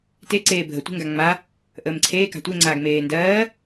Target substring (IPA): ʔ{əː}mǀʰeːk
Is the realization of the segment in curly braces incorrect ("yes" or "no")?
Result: no